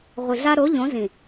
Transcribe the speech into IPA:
ʁʷ i˨ ɮ a˦ ɾ o˨˦ ʎ õ˨˦ z ĩ˨

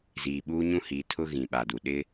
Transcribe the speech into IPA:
z iː˨ ɓ uː˦ ɲ ũ˦ h i˨˦ tʰ ʊ˦ ɣ ĩ˨ ɓ a˨ d u˨ ɗ ɪ˦

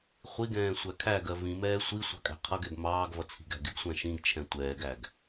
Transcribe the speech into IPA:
χʷ i ɡ ɛ̃ː sʷ æ kʰ æ ɡ ɜ v ĩ m ɛː sʷ i sʷ ɑ̤ kʼ æ̤ qʰ ʌ ɡ ɛ ɡ m ɑː ɡ v ʌ t͡sʰ i̤ ɡ æ̤ ɡ ɪ ɡ sʷ æ̃ ʃ ĩ ɡ t͡ʃʰ ɛ̃ tʷ ɛː ɡ æ ɡ

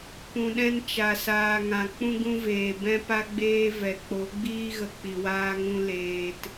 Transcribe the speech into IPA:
p ũ˨ ɗ ɛ̃˧ n t͡ʃ a˨ s aː˨ ŋ ã˨ k͡p ũ˧ ɡ ũ˧ v eː˨ b ɛ̃˧ p a˧ ɡ͡b eː˧ v ɛ˨ k͡p o˨˦ ɡ͡b iː˦ ɣ ə˧ k͡p i˨ w aː˧ ŋ ũ˧ l eː˧ t

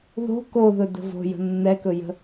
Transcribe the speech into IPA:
ð o̤ k o ð ɵ d ə̤ v o̤ j ə̤ nː ɛ k ɵ j ə̤

